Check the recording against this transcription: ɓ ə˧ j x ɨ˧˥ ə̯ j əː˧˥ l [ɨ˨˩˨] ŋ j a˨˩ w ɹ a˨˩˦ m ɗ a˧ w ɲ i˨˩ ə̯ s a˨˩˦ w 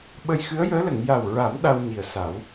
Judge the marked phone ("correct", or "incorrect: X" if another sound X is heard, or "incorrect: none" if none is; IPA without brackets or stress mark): incorrect: ə˨˩˨